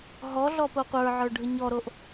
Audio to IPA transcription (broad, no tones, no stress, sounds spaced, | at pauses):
ɦ ɔ ɮ ɔ p o qʷ ə˞ ʕ ə˞ ɖʱ ɯ ɲ ɔ ɾ o ʔ